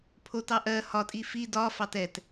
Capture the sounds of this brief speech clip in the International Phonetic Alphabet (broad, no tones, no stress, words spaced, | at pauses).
pʰotɑ ʔɜ hɒtʼi fi dɒfɑt ɛt